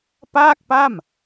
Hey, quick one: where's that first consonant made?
lips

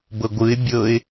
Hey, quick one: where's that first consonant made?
lips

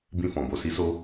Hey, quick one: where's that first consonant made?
lips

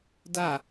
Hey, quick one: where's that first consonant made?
tongue tip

